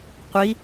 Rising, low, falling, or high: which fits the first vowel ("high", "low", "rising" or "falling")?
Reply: rising